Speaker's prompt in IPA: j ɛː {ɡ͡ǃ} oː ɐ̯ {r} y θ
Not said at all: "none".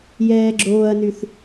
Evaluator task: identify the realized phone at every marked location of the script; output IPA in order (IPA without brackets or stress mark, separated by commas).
ɡ͡ǁ, n